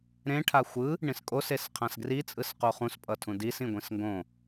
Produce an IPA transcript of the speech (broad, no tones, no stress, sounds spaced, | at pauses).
ɾ ẽ ʈʰ a xʷ ɯ | ɳ ĩ s kʼ o s e s qʰ ã s ɡ r i t͡sʼ ɯ s q o χ ũ s pʼ ʌ tʰ ũ d i s ĩ ɡʷ ĩ s ŋ ɡ õ